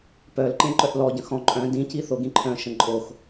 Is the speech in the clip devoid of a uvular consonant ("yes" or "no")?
yes